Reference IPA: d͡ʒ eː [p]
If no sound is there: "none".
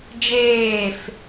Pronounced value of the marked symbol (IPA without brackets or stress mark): f